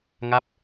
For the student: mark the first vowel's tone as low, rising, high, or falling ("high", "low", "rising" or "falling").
falling